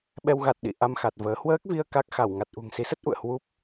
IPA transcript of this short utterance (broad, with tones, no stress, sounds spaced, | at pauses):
ɓ ɛ˧ w ɣ a˨˩ t̚ ɗ ḭ˧˨ ʔ a˧ m x a˨˩ t̚ v əː˨˦ h w əː˦˥ k̚ v i˧ ə̯ k a˦˥ k̚ x a˧˩ w ŋ a˨˩ t̚ ʔ ṳ˨˩ ŋ s i˨˦ s ə˦˥ t̚ ʔ ṵ˧˨ ə̯ h w u˦˥ p̚